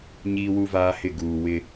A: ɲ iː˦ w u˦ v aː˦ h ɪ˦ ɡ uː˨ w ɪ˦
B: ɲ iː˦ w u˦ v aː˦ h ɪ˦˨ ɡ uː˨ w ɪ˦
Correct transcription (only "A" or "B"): B